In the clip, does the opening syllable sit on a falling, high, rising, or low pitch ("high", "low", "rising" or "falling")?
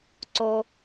low